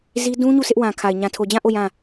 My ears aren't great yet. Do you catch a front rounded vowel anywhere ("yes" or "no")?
no